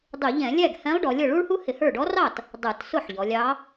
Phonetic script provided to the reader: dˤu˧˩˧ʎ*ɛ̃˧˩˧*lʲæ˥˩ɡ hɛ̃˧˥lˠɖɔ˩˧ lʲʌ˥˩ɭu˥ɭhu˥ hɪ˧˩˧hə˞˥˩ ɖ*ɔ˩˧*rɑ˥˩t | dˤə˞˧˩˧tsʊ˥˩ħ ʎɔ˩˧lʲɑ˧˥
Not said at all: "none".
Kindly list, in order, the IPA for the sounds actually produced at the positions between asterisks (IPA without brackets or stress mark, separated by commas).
ɛ̃˧˩˧, ɔ˧˥